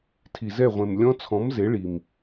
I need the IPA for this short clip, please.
tʰ i˨ z ɛ˦˨ ʁʷ ẽ˨ m lʲ ɔ̃˦˥ t͡sʰ ɔ̃˨˥ m z e˨˥ ɭ i˨ m

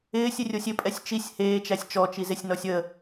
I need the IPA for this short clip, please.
ɪː sʲ ɪ rʲ o sʲ ɪ pʼ ɛ sʲ t͡ʃ i sʲ h eː t͡ʃ æ sʲ t͡ʃ ɔ t͡ʃ i z e sʲ n ɔ sʲ ə

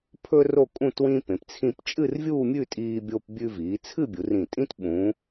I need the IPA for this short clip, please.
pʰ ɵ˥ r o˥˧ kʼ ũ˥˧ t w ĩ˥ p ẽ˩˧ p t͡sʰ ĩ˥˧ p t͡ʃʼ ɨ˥˧ r vʲ uː˥˧ mʲ ʉ˥˧ tʼ iː˧ bʲ o˧ p bʲ ʉ˧ v iː˩˧ t͡sʰ ɨ˥˧ bʲ u˩˧ r ĩ˧˩ tʼ ĩ˥ t ɓ ũ˩˧

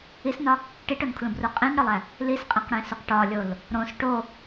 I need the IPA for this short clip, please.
i s n ɒ | ʈ i ʈ o n kʰ l ũ b r u qʼ ĩ n ɽ ɒ lˠ æ | l i s qʼ ẽ q ɽ ẽ s u q ʈ ɒ lʲ o l | ɾ õ s ʈ o

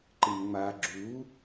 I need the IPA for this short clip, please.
ǃ ɨ m ŋ͡m a ɡ͡ǁ u

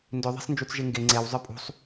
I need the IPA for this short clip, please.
n d ʏ ðˤ e̤ sˤ n d͡ʒ u t͡s ʒ e ŋ ɡ e ŋ͡ǀ e w zˤ ə˞ pʼ ṳ sˤ

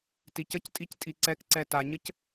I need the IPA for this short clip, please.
t i c ə c tʼ i c tʼ i ǀ ɛ k ǀ ɛ t a ɲ ə c

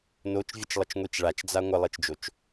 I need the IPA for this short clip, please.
n o t͡ʃ vʲ ə t͡ʃ lˠ ə t͡ʃ ŋʷ i t͡ʃ ɭ a t͡ʃ d͡z a ŋʷ ə lˠ i t͡ʃ d͡ʒ o t͡ʃ

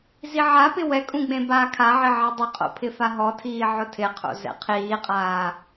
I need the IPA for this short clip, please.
z i ʕ a p ɪ w ɛ kʼ ũ ɡ͡b ẽ b aː kʰ a ʕ ɪ ʕ i dˤ ɪ qʼ o̰ pʰ ɪ f a ɦ ɔ tʰ iː ʕ ʊ tʰ ɪ qʰ o̰ z ɛ̰ qʰ iː qʼ aː

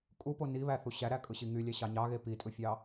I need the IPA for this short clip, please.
kʼ u p o n i β æ θ u ɕ æ ɾ æ kʼ ɯ ɕ i ŋ y lʲ æ ɕ ɑ ɲ ɑ ɣ e p i tʼ ɯ fʲ ɑ

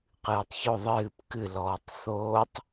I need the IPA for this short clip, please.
q ɨː tˤ ç o ðˤ ɨː p k ɨ l ɔː tˤ θ oː tˤ

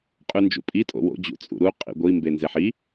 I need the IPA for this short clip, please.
qʼ ʉ n d͡ʒ ṵ pʼ i tʼ o̰ w o̰ d͡ʑ ṵ t͡sʼ ṵ ɾ u qʼ ḭ ɡʷ i m b e n z e ħ i

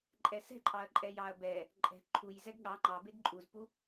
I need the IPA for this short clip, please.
ǃʼ ɛ s ɛ̤ ǃʼ ɑ ɐ̯ ǃʼ ɛ j ɑ ɐ̯ b ɛ | ǃʼ ɛ̤ ǃʰ u j z ɛ ɡ ɠ ɑ ŋ͡ǃ ɑ b e ɡ ǃʼ u z p u

